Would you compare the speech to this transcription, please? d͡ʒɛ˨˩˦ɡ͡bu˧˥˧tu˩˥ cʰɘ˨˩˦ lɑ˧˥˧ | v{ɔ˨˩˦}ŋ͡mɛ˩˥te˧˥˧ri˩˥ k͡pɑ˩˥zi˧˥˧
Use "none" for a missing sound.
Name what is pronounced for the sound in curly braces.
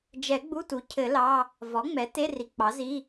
ɔ˩˥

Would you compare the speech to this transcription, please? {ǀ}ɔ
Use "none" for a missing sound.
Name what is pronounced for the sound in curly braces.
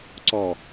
ǀ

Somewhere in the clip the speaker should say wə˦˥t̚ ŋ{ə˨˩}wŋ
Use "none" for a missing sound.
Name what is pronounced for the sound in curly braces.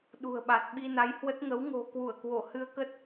ə˨˦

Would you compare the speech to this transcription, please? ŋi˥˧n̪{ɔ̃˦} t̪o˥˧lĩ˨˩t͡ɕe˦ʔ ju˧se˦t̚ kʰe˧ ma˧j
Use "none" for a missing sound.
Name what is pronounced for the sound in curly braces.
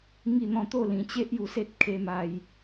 ɔ̃˥˧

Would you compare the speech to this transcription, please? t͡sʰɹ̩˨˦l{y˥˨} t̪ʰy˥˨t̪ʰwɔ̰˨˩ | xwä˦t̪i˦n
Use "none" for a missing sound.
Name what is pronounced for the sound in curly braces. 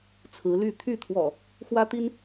y˥˨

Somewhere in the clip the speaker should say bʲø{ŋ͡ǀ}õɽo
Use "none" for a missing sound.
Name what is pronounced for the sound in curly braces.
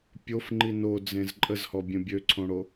ǀʰ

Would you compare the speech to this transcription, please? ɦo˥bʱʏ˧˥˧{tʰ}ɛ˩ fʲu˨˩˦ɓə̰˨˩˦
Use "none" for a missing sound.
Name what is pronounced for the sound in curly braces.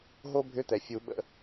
t̪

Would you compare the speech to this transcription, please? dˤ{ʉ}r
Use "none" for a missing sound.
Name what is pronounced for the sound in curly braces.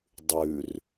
ʉ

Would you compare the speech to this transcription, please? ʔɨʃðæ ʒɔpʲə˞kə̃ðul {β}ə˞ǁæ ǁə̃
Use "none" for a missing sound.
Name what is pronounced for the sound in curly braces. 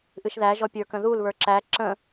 β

